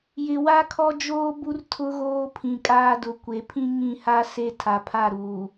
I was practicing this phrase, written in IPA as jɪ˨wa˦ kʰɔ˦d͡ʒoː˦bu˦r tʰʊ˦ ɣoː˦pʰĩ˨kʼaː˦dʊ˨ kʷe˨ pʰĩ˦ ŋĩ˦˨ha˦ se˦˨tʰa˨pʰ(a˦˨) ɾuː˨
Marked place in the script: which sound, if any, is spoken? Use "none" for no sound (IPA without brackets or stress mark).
a˦˨